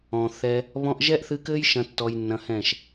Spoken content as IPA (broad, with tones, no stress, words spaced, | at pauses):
ɔ̃˨θɛ˧ | βɔ̃˧ʔʒɛ˦ʔθɨ˧kɘ˦j ʃɐ̃˦tːɔ˧jnːɐ̃˧hɛ̃˦˨ʃ